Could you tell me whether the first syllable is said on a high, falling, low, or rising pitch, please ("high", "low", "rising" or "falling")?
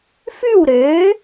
falling